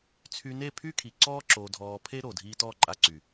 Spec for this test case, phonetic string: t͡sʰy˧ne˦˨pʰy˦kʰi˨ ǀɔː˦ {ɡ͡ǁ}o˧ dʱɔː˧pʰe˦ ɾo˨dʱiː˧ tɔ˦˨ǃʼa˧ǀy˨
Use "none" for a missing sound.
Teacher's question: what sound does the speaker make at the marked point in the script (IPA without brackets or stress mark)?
ǁ